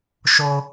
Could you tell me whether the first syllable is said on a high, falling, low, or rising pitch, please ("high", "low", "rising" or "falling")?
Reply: high